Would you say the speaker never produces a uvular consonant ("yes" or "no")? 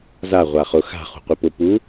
no